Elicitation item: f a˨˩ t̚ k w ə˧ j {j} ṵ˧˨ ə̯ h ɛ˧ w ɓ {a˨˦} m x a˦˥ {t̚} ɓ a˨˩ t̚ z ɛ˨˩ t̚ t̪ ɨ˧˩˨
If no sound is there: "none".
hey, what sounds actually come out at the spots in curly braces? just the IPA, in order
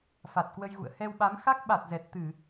ɣ, a˨˦, k̚

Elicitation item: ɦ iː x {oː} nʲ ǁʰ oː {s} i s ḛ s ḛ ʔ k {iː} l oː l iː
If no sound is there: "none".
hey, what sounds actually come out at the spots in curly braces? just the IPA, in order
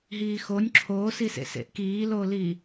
o, s, iː

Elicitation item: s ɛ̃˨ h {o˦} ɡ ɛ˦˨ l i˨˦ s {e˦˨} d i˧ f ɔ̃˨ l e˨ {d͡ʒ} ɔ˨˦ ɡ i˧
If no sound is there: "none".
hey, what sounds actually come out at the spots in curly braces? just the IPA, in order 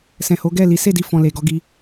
o˨˦, e˦˨, ɡ

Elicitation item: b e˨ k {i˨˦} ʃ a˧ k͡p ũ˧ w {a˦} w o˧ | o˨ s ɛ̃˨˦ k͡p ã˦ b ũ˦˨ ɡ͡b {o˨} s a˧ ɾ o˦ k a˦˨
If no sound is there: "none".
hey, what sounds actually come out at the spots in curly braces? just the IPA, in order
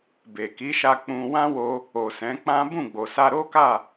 i˨˦, ã˦, o˨

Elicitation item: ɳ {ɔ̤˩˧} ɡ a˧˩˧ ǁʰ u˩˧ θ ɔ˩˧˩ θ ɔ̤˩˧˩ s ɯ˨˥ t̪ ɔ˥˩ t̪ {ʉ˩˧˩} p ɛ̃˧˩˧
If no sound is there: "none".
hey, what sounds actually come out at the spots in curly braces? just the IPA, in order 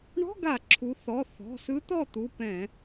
ɔ̤˧˥˧, u˩˧˩

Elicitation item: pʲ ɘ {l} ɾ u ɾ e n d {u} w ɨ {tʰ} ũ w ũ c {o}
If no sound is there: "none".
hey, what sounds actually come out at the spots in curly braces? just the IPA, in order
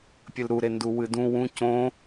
l, u, d, õ

